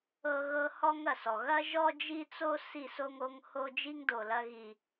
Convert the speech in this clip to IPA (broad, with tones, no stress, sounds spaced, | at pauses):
ɤ˦ ɣ ɤ˦ h ɔ˦ ŋ ɐ˨ s ɔ˨ ɣ ɐ˦ ʒ ɔ˦ d͡ʒ i˦ t͡s o˦ s i˦˨ s o˦ ŋ o˦ ŋ h o˦ d͡ʒ i˦ ŋ d o˨ l ɐ˦ ɣ i˦